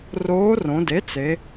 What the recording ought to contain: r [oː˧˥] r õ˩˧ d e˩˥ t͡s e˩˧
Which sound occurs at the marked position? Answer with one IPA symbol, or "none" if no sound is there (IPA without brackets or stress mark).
oː˧˥